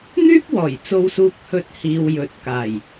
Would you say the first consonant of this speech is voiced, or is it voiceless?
voiced